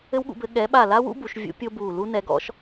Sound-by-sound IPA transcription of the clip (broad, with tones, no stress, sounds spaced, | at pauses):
ɘ˥ w ɠ ṵ˨˥ b ɘ˨˥ ɠ ɛ˨˥ ɓ a˦˨ l a˥ w ṵ˥ b u˨˥ ʃ vʲ ṵ˥ pʲ o˥ b u˦˨ l u˥ n ɛ˨˥ ɡ ɔ̰˥ ʃ